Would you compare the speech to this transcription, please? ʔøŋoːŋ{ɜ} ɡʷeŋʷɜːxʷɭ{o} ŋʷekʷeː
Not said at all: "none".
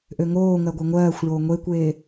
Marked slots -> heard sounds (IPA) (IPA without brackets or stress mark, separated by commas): ɜ, oː